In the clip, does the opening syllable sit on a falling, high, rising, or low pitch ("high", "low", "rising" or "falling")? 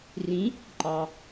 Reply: rising